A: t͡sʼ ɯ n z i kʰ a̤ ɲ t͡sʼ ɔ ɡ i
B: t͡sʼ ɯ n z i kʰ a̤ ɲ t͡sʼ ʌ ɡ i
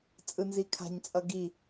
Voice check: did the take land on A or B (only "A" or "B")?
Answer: B